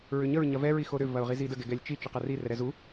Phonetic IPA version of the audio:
ɹ ʏ ɲ ə ɹ ɲ ɐ v ɛ ɹ i x o ɾ ʏ v ɐ ʊ̯ ʁ i z i d ə ɡ ɛ ɡ ɛ lʲ t͡ʃ i t͡ʃ ʏ q ɐ r i r ɛ ɾ ɛ z u

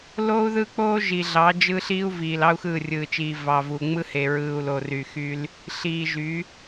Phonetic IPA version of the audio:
l oː˦ u̯ ð ɯ˦ k͡p oː˦ ʒ i˨ ɮ ɑ˨˦ d͡ʒ ɯ˦ ɬ iː˦ u̯ v iː˨ l ɑ˦ u̯ x ɯː˦˨ rʲ ɯː˨ t͡ʃ iː˨ v ɑ˨ v u˨ ŋ͡m ɯ˦ h e˨ ɹ ɯː˨ u̯ l o˨ r y˨ x y˦ l | ɬ iː˨ ʒ y˨˦

